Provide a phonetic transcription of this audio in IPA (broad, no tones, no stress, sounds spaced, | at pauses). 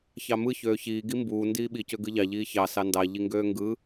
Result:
ç ɑ m ɯ ç øː ç iː ɡ i m b uː n d iː ɓ i c ø ɡ ɯ ʎ ɑ ʎ iː ç ɑ s ɑ n d ɑ ʎ i ŋ ɡ øː ŋ ɡ ɯ